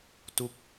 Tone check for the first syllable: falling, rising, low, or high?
falling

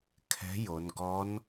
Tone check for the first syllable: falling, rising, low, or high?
rising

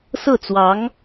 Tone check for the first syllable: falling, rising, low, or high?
falling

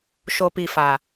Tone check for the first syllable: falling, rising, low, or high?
low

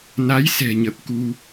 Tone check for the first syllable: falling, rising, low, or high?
rising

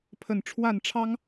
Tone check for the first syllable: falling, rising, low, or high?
low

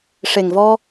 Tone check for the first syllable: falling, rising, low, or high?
low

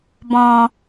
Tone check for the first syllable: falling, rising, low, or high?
low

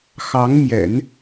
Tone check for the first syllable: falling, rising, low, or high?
rising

